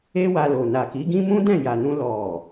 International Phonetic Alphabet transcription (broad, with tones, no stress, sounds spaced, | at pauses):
e˦ w a˧ l o˨ n a˨ k i˨˦ ɡ ĩ˦ m ũ˦ d ɛ̃˦˨ j a˨ n ũ˧ l ɔ˨